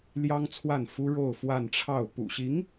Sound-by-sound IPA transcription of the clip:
l j ɑ˥ ŋ t͡sʰ w a˥˩ n f u˥ ɻ o˥˧ ʊ̯ f w a˥˧ n ʈ͡ʂʰ ɑ˥˩ ʊ̯ p ṵ˨˩ ɕ i˧˥ ŋ

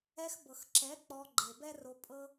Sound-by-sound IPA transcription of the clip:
ɛ˧ x b ɤ˨ x ǁ ɛ˨˦ k͡p ɔ˧ ɡ͡ǃ e˨ b ɛ˦ r o˧ pʼ ɤ˦

